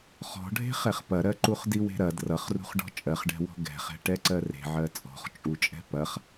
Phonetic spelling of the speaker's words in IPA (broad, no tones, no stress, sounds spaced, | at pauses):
χ ɔ̤ ɖʱ e̤ χ ɛ χ p ɐ ɾ ɜ ǃ u χ d i w e̤ ɾ ɐ d r ʌ χ r ṳ χ ɖ ɔ̤ t͡ʃʼ ɜ χ ɖ ɛ̤ w ɔ̤ ɡ ɛ̤ χ ɛ̤ ʈ ɛ ǀ ɜ r e̤ ʕ ɜ t͡sʼ ɔ̤ χ t͡ʃʼ u t͡ʃʼ ɛ̤ p ɐ χ